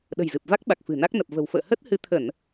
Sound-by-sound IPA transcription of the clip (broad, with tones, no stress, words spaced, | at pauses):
ɗə̤˨˩jzɨ˨˩p̚va˦˥k̚ ɓa˨˩k̚fɨ̤˨˩na˦˥k̚ nə˨˩p̚və̤˨˩wfə̰ː˧˨ hə˦˥t̚ hɨ˨˦t̪ʰə˧˩˨n